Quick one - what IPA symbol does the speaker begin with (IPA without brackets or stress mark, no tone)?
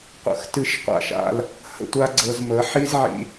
qʷ